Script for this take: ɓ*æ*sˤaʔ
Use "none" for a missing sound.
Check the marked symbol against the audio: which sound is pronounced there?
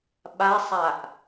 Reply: a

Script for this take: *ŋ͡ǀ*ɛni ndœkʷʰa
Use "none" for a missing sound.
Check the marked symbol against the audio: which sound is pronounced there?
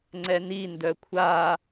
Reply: ŋ͡ǀ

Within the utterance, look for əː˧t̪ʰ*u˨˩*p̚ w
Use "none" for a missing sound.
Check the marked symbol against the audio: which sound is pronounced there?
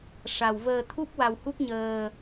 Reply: u˦˥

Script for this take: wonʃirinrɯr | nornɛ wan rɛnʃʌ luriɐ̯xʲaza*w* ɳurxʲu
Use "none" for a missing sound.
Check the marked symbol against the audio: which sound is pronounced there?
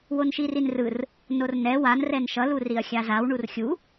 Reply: w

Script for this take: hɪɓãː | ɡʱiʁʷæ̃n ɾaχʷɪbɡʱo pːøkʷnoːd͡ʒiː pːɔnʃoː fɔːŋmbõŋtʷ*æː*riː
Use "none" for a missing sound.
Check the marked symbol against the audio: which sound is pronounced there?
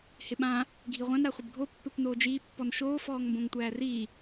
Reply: æː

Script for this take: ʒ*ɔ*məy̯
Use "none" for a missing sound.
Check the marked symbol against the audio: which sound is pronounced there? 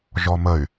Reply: ɔ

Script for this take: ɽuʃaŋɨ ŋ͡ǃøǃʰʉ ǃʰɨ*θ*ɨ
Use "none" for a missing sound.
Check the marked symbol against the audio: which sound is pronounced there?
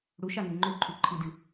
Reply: d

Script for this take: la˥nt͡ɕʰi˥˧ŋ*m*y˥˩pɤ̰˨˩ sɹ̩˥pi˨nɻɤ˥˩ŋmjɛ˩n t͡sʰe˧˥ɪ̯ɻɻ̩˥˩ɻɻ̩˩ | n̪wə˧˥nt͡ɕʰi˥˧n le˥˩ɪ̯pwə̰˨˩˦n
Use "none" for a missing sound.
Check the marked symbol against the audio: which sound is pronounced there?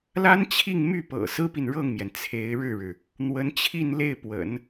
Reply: m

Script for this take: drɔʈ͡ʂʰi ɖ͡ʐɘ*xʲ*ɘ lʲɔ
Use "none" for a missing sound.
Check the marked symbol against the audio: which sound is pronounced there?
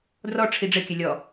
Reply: kʲ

